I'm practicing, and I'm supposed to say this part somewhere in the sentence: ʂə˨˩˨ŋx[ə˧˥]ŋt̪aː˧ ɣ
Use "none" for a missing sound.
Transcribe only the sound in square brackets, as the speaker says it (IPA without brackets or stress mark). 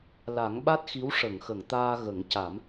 ə˨˩˨